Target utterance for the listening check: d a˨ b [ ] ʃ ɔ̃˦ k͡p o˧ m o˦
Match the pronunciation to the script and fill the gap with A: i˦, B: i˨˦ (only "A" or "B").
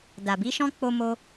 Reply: B